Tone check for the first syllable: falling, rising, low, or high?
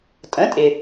rising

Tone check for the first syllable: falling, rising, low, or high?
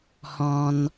low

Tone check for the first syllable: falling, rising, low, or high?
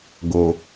low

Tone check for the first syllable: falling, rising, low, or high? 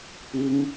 high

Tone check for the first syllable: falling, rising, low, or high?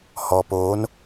low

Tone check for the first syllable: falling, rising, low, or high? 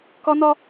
high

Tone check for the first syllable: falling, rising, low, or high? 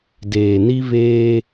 low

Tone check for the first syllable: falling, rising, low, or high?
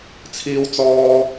high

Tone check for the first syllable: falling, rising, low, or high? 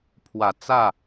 low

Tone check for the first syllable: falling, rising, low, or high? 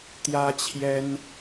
high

